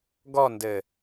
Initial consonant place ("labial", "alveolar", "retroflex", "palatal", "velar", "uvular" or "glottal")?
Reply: velar